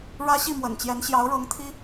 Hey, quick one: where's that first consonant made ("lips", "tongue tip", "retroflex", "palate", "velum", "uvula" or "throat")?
retroflex